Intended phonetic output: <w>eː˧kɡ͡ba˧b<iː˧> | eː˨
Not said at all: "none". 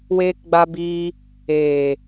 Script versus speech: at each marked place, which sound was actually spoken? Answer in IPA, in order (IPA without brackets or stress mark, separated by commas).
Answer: w, iː˧